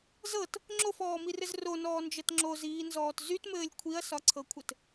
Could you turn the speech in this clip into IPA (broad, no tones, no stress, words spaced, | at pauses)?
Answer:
zɤt | ŋ͡ǁofɔːmirɘz ronɔːnd͡ʒɤt ŋ͡ǁoziːnzɔːt zytmɘːlʲ kʷʰiɐ̯sɒǀʰɤkʷʰɘt